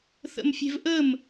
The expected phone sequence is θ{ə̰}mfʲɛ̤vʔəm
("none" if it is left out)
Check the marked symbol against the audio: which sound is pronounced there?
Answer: ə̰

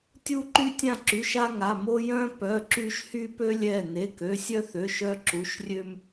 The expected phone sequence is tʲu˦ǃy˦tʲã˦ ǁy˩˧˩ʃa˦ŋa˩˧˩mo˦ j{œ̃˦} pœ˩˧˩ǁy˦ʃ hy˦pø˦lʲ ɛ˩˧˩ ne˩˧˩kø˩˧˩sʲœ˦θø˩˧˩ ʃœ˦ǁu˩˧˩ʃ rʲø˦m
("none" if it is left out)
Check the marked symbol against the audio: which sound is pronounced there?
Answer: œ̃˦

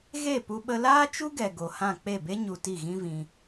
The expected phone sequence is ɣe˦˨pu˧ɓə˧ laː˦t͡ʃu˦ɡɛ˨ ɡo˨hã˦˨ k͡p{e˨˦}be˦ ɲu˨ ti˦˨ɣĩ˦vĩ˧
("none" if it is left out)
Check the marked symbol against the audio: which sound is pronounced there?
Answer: e˦˨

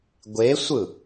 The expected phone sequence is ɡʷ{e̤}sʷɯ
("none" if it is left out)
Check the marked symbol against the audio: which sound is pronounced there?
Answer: e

